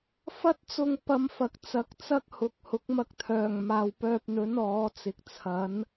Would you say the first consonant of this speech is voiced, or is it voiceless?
voiceless